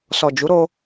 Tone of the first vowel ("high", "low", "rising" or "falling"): low